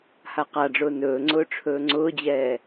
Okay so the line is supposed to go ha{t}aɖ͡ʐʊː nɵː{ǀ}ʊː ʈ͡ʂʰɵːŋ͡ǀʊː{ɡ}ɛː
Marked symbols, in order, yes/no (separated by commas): no, no, no